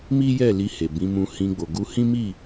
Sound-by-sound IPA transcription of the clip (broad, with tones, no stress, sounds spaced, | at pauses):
m i˦ j ɛ˦˨ l i˧ h e˨ b ĩ˨˦ m ũ˧ h ĩ˧ ɡ͡b o˨ ɡ u˧ h ĩ˦ m i˦˨